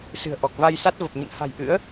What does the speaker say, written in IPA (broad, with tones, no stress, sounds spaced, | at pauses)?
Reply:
s ɨ̤˨˩ ə̯ ʔ ɔ˨˩ k̚ v a˧ j s a˦˥ t̚ v ə˨˩ p̚ ɲ ə̰˧˨ n h a̤˨˩ j ʔ ɨ̰˧˥ ə̯